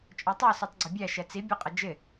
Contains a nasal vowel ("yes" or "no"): no